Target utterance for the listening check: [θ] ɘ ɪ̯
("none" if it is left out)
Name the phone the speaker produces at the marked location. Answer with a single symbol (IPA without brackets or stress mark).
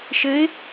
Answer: ʃ